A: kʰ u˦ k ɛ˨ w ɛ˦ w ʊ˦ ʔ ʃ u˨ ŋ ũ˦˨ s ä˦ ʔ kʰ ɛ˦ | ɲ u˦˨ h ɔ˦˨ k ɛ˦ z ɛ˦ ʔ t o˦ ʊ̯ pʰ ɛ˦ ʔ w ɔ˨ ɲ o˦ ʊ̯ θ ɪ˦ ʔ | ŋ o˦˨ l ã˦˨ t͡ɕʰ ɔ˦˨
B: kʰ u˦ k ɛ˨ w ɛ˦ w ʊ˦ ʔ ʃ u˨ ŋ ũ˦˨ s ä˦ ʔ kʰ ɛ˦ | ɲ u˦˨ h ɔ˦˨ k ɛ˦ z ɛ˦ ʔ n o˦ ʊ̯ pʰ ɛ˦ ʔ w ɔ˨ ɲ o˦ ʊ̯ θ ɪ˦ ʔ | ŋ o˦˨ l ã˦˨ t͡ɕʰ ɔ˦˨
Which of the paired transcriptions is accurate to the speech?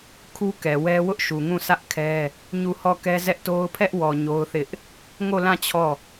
A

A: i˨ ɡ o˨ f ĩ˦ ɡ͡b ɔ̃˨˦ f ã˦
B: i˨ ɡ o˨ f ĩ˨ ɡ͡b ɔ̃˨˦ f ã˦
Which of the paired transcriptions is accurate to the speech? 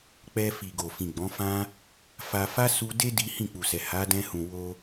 B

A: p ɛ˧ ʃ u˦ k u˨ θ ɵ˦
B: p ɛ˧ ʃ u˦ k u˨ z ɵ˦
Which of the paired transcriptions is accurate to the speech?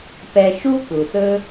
A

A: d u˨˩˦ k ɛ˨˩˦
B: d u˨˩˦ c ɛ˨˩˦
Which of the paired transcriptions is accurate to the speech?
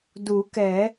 A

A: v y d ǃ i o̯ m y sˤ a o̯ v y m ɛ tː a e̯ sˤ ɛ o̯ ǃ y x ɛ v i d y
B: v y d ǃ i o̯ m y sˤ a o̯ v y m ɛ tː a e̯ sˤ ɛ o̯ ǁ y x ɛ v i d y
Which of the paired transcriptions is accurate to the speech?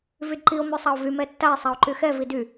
A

